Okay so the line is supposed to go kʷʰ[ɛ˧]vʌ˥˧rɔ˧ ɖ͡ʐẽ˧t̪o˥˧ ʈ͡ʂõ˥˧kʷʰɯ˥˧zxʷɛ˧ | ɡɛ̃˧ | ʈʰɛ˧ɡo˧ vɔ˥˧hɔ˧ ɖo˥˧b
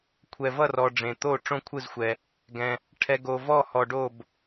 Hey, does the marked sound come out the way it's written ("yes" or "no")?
yes